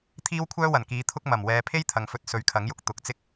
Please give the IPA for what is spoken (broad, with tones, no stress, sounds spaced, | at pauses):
t̪ʰ iː˥ w kʷʰ œː˥ w ɐ˨˩ n k iː˨˧ t̪ʰ ʊ˥ k̚ m ɐ˨˩ m w ɛː˨ pʰ e˥ j t̪ʰ ɐ˨ ŋ f ɵ˧ t̚ s ɵ˨˥ ɥ kʰ ɐ˨˥ ŋ j ʊ˧ k̚ t̪ ʊ˨˥ k̚ t͡s ɪ˥ k̚